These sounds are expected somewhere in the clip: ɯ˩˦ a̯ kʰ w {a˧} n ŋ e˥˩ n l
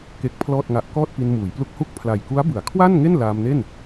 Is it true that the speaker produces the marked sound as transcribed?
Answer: no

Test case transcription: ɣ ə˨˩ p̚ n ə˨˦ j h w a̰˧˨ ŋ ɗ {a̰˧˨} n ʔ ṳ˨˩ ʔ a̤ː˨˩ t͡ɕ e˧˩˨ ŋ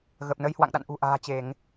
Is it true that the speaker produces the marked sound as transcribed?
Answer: yes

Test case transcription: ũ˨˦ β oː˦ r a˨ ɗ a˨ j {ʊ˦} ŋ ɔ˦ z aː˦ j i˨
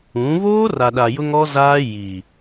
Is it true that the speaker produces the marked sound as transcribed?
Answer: yes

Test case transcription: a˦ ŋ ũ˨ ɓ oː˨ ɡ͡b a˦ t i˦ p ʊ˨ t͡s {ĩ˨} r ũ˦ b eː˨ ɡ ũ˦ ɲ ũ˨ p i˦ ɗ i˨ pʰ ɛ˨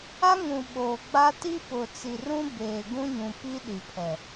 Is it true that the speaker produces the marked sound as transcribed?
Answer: no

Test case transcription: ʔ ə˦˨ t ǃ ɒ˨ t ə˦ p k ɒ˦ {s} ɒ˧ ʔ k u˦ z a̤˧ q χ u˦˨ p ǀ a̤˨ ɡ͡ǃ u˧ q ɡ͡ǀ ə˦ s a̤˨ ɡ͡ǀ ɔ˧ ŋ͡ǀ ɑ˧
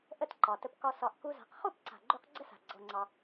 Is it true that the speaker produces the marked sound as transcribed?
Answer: yes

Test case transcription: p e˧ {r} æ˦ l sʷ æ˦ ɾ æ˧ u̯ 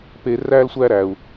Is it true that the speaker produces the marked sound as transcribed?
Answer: yes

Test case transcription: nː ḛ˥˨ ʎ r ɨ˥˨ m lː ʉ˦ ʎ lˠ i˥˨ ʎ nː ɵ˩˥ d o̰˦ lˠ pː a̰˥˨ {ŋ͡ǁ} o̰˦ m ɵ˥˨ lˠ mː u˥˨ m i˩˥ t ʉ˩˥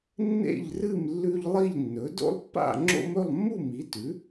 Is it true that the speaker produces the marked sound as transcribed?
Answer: yes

